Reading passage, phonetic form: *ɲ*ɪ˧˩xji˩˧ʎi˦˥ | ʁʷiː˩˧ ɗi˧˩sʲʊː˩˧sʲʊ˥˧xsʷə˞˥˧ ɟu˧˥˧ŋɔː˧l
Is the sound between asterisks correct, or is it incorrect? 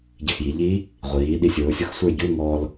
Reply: incorrect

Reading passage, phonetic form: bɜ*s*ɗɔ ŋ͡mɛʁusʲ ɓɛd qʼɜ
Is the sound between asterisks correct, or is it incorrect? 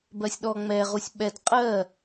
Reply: incorrect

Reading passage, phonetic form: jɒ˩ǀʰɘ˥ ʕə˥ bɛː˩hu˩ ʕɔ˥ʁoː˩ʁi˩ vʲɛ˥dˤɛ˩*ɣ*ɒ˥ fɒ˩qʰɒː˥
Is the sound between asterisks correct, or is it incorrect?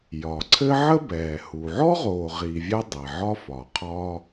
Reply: incorrect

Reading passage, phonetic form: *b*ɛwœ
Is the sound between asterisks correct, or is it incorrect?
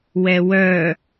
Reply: incorrect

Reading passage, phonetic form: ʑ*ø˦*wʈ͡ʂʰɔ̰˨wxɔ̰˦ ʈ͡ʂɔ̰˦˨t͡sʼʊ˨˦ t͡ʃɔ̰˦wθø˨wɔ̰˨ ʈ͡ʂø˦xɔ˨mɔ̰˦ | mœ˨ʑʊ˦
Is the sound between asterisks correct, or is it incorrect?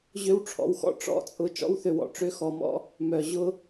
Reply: correct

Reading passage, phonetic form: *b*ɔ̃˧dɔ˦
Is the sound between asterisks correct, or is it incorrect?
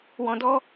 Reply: incorrect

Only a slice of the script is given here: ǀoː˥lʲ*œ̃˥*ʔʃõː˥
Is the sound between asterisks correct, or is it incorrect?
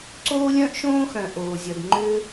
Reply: correct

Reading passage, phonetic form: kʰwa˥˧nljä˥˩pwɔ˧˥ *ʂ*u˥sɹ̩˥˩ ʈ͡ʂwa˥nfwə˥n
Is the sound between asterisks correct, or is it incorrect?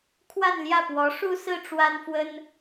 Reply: correct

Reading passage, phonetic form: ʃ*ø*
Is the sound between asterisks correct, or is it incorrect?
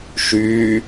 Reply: incorrect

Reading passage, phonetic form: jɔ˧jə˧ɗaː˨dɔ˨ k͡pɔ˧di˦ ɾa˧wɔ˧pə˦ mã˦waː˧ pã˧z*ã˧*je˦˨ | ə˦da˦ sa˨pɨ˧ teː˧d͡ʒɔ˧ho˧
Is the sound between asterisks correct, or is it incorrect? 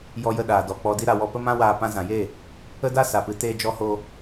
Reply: incorrect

